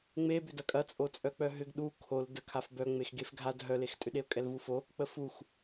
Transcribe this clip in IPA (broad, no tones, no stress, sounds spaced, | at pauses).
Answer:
ŋ͡m e b ʏ d ɐ kʼ ɐ t͡sʼ o t͡sʼ œ k͡p œ ɦ ʏ ɡ ɗ u kʰ o l d ə kʰ a f b œ ŋ͡m e x ɡ e f ɡʱ a d ɦ œ l e x tʼ ʏ ɗ e ʊ̯ kʼ ɛ l v u f o | k͡p ə f u x